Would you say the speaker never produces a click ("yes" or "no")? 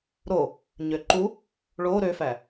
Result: no